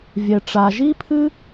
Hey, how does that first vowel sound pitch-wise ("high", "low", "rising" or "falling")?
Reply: low